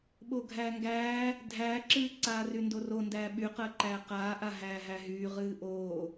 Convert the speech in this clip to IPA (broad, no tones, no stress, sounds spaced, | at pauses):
ɓ o ɡʱ æː ŋ ɡ æː | dʱ æː ǁ ɨː ǀ aː r y n d o r o n d æː ɓ y q əː ǃ æː q aː ʔ a ɦ æː ɦ æ ɦ yː ʁ ɨː ʔ oː